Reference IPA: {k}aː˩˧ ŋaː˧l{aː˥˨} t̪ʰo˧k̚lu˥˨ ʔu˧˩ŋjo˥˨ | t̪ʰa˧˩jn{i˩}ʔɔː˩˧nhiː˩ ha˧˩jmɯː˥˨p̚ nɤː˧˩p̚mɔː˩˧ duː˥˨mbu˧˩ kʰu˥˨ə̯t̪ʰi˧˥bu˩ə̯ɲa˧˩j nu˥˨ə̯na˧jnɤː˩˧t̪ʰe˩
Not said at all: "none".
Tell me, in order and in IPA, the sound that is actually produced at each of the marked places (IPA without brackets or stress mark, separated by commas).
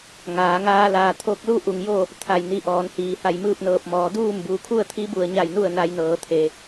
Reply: ŋ, aː˩, i˧